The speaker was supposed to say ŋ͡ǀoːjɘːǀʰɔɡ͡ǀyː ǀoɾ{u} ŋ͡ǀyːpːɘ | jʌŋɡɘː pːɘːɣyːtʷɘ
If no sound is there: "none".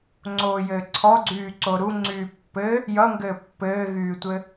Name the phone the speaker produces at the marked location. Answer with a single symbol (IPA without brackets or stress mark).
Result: u